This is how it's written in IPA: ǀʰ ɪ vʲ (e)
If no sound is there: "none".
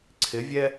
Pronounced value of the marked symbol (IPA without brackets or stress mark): ɛ